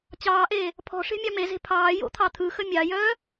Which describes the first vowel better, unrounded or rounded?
unrounded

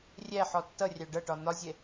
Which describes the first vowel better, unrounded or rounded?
unrounded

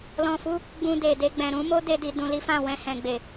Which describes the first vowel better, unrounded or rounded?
rounded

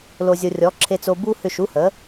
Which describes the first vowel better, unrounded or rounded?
rounded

